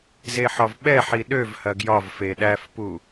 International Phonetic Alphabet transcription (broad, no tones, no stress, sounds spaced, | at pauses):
z e ħ ɒ v ɓ ɛ ħ i ɗ ø v h ɐ ɡ j ɒ v f e ɗ æ f p u